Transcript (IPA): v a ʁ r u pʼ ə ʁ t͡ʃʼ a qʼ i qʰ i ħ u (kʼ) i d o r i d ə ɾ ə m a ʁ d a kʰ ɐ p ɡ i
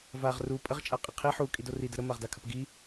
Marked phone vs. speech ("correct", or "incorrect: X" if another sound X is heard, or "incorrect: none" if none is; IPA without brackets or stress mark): correct